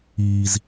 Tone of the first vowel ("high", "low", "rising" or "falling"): low